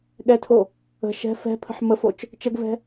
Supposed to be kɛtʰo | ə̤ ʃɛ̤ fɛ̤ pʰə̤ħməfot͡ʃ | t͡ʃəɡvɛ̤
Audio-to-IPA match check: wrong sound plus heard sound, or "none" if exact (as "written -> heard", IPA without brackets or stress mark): k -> ɠ